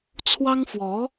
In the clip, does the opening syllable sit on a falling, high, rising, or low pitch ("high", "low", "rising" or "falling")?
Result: high